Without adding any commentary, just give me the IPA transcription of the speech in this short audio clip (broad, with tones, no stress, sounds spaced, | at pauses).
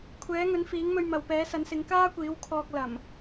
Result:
kʷʰ ɛː˨˥ ŋ ɵ˨˥ n f iː˨˥ ŋ m ɵ˧ ɥ m ɐ˨ w p ɛː˨˥ s ɐ˨˥ n s ɪ˨˥ ŋ k aː˥ kʷ iː˨˥ w kʰ ɔː˧ k̚ l ɐ˨˩ m